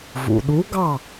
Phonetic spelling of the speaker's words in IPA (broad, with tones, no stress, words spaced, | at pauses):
vṵ˩ɗu˨˥ɡɑ˥˨